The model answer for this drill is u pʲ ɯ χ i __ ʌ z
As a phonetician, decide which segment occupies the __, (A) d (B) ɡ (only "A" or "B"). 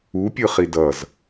A